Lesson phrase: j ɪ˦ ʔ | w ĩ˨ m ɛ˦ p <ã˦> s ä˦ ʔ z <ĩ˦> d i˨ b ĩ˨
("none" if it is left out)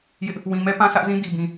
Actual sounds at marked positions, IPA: ã˦, ĩ˦

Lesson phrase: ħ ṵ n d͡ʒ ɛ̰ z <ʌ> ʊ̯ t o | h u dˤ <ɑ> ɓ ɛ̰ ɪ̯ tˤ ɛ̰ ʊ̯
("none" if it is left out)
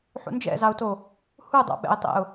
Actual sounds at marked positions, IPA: ɑ, ɑ̰

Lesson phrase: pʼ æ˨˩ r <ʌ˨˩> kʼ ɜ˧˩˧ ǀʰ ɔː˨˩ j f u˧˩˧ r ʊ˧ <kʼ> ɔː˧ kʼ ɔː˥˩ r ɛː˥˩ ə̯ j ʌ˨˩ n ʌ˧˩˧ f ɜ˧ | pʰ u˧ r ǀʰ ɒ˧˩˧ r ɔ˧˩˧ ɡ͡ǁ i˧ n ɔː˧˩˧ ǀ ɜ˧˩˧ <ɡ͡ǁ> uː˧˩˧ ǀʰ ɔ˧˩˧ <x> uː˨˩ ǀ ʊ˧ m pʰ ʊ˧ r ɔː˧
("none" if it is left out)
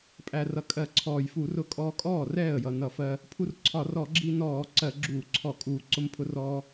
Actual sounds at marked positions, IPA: ʌ˨˩, kʼ, ɡ͡ǁ, kʼ

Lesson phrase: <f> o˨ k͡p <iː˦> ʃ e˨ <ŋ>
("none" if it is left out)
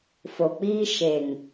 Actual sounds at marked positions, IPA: f, iː˦, ŋ

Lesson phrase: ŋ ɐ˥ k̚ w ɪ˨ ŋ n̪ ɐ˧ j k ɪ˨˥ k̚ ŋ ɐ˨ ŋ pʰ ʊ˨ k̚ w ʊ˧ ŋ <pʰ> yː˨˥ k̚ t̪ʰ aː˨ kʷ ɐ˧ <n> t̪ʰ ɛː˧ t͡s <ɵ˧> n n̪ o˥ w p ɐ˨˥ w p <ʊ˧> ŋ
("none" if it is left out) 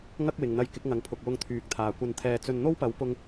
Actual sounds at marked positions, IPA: t̪ʰ, n, ɵ˧, ʊ˥

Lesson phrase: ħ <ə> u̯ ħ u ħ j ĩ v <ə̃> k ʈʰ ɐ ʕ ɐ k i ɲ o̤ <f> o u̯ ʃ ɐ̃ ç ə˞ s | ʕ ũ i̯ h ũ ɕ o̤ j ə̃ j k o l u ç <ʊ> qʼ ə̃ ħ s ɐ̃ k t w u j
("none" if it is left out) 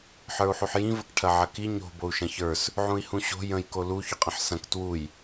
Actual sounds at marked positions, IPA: ə˞, ə, b, ʊ

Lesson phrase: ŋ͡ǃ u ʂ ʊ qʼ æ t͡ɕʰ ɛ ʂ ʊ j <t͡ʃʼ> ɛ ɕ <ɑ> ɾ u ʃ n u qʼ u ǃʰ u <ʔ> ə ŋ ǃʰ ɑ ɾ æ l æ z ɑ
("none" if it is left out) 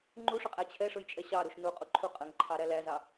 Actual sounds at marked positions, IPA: t͡ʃʼ, ɑ, qʼ

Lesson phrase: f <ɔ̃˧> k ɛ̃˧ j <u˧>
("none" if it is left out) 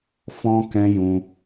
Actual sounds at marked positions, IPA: ɔ̃˧, ũ˧

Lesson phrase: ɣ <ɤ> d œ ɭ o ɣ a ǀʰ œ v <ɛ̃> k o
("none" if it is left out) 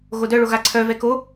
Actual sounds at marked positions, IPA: o, ɛ

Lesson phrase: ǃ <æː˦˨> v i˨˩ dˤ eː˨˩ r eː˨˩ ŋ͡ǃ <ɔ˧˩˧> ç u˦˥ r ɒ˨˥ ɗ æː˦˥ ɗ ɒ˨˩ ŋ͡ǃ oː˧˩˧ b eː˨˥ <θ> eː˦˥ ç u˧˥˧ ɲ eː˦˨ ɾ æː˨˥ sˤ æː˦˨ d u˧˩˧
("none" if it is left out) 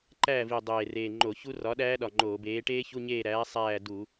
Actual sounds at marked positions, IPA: æː˦˨, o˧˩˧, ʈ

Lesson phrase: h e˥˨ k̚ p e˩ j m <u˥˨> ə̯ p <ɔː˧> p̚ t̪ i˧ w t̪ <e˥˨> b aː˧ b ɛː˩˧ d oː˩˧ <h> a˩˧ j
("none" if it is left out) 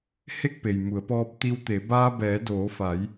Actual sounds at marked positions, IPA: u˩˧, ɔː˧, e˩˧, f

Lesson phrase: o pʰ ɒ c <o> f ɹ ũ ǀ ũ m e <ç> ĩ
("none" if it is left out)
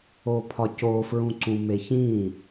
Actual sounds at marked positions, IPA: o, ç

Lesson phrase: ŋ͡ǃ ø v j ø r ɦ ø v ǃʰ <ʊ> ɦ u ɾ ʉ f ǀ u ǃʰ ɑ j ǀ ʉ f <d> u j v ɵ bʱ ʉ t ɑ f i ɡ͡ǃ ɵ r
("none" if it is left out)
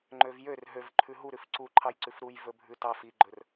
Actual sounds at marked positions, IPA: ʉ, ɾ

